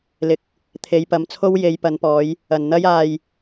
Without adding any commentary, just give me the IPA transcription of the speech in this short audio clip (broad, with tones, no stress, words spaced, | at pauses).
lɪ˨k̚ | t̪ʰe˨˧jpɐ˨˧mt͡sʰo˥w je˨˧jpɐ˨˧npɔː˨˧j | ɐ˨nn̪ɐ˥jaː˧j